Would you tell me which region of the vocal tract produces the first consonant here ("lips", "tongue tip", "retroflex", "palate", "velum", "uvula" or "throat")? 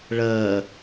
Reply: retroflex